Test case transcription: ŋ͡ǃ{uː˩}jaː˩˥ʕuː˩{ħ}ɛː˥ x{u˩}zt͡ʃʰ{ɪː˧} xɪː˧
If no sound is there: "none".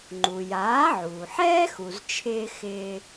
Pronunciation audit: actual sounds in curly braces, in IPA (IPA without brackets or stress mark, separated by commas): u˩, ħ, u˩, ɪː˧